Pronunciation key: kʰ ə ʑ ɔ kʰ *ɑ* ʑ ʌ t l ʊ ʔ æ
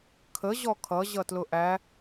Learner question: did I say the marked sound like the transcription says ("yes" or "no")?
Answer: no